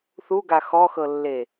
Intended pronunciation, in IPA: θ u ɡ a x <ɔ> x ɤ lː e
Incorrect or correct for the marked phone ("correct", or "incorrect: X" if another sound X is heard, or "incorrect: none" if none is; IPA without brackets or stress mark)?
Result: correct